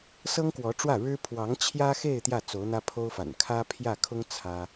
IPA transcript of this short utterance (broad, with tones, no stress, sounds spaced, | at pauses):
s ɤ˥ ŋ k w ɔ˧˥ ʈ͡ʂ w ä˥˩ ɻ ɻ̩˥ pʰ w ɑ˧˥ ŋ t͡ɕʰ j ä˥ x e˥˧ ɪ̯ t̪ j ä˥˩ t͡s o˧˥ ʊ̯ n̪ ä˥ pʰ o˥ ʊ̯ f a̰˨˩ n kʰ ä˥ pʰ j ä˥˩ kʰ ʊ˥ ŋ t͡sʰ ä˥